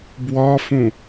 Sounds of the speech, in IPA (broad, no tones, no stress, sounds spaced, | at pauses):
b w ɒ f ũ